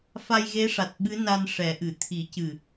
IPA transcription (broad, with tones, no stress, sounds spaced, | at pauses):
f a˧ j ɣ e˧˥ ʂ a˨˩ t̚ ɓ ɨ˧˥ n a˧ n ʂ ɛ˨˩˦ ʔ ɨ˨˩˨ t̪ʰ i˨˩˦ c ɨ˨˩